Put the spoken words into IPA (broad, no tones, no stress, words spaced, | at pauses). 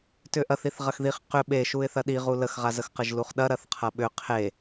tʏʔɐθ iθʁɐxðiχ qʏ ɓe ʃuɪ̯θɐɗi ʁuləxʁazəx qəʒluχɗɐ ɾɐθqʰɐɓʏ qʰe